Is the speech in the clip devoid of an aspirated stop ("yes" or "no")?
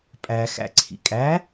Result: no